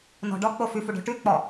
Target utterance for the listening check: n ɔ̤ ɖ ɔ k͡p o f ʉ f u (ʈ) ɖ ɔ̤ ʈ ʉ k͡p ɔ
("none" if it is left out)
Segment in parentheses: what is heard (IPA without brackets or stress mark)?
none